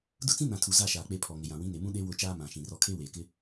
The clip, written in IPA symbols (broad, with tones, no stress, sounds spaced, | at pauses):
d ʊ˦ t͡s ĩ˦ n ã˨ tʰ u˨ z a˦˨ ʃ aː˨ k͡p e˨ pʰ ɔ˨ ŋ ɪ˨ j ã˨ w ĩ˨˦ n e˨ m ũ˦ ɗ e˦ w ʊ˦˨ t͡ʃ aː˦ m ã˨ ʃ ĩ˨ r ɔ˦ kʰ e˦ w eː˨ k ɪ˦